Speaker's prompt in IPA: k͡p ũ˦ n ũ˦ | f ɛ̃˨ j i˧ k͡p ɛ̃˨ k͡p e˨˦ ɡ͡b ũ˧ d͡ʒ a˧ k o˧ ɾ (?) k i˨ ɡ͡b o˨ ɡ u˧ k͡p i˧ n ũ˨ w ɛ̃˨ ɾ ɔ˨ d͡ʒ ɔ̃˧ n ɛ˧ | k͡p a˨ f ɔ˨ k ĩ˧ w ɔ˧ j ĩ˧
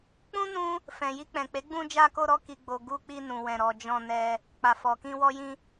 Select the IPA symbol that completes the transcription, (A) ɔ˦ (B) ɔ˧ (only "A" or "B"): B